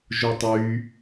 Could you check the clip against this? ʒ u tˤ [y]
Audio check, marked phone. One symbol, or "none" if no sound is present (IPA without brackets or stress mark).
y